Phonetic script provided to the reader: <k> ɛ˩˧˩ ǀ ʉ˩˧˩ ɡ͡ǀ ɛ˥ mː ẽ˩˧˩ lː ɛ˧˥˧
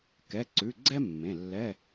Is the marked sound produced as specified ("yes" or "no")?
yes